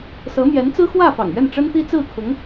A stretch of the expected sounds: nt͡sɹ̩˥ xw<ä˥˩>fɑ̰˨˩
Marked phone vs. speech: correct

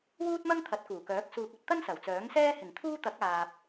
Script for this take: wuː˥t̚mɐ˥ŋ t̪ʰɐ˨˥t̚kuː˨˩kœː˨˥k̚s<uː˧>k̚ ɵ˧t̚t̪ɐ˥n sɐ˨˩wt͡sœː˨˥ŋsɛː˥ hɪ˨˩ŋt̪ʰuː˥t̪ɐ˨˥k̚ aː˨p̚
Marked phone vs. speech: correct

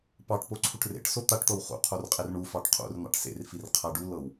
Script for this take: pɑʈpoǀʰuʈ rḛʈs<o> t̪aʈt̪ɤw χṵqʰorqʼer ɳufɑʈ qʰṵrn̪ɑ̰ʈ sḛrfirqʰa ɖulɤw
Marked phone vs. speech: correct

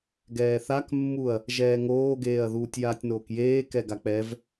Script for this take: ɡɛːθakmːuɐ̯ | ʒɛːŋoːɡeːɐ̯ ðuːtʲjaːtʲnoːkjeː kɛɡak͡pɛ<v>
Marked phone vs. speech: correct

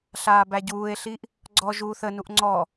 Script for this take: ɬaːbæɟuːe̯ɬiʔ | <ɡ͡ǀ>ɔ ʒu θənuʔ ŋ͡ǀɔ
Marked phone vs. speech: correct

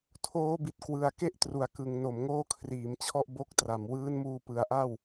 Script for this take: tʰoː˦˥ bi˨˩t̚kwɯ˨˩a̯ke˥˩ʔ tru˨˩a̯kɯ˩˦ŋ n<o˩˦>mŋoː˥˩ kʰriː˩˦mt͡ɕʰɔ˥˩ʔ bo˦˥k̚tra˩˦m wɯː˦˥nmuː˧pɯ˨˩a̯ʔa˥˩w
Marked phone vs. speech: correct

